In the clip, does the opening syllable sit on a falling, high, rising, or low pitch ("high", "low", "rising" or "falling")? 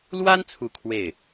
high